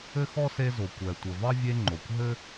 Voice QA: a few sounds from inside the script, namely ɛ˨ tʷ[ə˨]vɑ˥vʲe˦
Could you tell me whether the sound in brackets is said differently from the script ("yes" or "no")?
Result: no